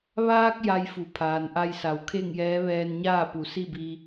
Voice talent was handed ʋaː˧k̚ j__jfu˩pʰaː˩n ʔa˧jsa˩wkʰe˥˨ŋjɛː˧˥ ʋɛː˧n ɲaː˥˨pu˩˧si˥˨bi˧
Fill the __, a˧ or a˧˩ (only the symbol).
a˧